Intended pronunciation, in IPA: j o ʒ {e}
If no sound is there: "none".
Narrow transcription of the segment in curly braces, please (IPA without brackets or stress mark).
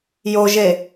e